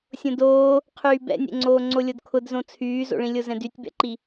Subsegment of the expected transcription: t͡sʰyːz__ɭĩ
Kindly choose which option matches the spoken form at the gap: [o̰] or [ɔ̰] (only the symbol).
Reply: o̰